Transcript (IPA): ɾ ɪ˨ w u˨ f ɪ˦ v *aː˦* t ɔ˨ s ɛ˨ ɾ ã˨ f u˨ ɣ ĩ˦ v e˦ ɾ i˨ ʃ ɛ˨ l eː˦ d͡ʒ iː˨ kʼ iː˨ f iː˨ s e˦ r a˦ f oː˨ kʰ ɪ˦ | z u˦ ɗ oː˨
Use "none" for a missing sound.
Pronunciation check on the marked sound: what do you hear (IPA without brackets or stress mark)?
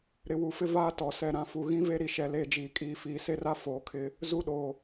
aː˦